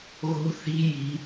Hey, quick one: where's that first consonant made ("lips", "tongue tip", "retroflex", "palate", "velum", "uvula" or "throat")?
velum